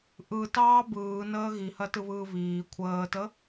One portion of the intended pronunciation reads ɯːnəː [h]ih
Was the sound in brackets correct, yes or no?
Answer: no